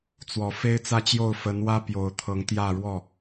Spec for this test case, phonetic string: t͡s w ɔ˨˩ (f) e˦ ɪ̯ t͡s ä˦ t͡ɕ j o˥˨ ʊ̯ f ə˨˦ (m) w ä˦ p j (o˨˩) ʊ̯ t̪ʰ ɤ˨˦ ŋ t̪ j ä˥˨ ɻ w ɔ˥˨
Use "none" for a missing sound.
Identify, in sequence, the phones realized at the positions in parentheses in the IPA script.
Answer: f, n, o˨˩

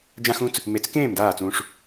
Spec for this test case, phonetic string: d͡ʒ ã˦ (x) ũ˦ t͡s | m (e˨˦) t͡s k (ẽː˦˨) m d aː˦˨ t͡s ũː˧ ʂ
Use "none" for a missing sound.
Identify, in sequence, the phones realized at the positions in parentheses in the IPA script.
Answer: x, e˨˦, ẽː˦˨

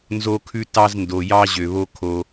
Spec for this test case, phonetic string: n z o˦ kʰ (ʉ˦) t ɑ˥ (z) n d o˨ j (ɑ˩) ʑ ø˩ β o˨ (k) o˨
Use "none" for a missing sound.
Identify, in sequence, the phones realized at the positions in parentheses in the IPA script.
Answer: ʉ˦, z, ɑ˥, kʰ

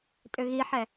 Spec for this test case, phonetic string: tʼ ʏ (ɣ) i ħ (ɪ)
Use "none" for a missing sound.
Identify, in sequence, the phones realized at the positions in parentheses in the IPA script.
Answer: ɣ, ɛ

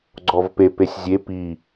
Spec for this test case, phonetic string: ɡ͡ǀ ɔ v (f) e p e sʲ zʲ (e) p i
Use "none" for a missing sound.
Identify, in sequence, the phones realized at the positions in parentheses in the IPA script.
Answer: p, e

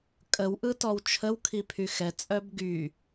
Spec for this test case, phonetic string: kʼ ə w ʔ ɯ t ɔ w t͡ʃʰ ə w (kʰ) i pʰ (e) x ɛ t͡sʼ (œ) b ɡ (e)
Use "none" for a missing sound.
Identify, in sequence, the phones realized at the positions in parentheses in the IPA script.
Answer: kʰ, y, œ, y

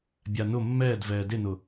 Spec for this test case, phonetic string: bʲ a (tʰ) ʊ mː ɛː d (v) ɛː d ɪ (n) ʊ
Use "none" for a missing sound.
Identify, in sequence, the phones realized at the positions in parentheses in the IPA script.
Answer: n, v, n

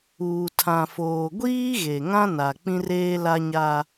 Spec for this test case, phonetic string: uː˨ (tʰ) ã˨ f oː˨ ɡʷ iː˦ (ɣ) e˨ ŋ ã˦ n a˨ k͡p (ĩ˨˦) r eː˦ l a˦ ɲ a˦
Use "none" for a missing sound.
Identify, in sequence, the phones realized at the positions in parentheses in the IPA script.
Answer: tʰ, ɣ, ĩ˦

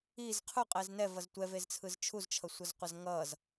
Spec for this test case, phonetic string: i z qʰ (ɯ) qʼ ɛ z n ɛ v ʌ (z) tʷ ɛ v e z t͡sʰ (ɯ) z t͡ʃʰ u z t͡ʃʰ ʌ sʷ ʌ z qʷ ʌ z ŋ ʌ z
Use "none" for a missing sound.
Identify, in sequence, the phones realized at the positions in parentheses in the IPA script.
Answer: u, z, ɯ

